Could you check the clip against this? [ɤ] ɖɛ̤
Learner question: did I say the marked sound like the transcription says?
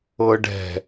yes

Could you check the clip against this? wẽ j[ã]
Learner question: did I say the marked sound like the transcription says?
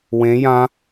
yes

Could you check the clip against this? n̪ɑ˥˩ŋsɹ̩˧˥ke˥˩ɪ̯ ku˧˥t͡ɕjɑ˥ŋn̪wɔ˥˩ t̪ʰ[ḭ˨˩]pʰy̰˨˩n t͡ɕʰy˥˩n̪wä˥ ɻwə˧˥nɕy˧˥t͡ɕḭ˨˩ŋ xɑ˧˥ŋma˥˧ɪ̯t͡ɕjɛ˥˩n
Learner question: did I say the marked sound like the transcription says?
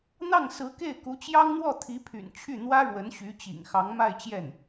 no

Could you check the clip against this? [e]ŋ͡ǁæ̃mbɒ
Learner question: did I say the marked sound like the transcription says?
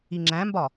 no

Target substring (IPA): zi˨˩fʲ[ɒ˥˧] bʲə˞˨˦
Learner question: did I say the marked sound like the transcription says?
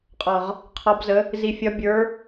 no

